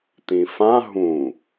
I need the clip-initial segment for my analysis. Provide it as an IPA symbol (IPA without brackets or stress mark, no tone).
t̪